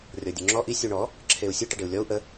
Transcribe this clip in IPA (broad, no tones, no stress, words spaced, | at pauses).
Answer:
rʲɔdʲuŋ͡ǁɔ ʔi sʲuɳɔ | ǁʰeu̯sʲɨ ʈɛɖeu̯lʲɔu̯ ʔə